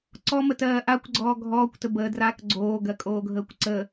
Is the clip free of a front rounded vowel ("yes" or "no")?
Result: yes